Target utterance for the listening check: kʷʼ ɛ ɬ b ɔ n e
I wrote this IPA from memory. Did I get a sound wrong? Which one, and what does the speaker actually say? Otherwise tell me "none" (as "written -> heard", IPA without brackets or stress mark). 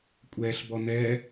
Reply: e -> ɛ